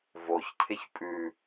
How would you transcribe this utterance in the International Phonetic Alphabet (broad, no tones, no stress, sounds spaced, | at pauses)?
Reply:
v o ç cʰ ɪ ç pʼ ʉ